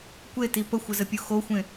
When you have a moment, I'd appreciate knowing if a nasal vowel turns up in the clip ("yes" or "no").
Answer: yes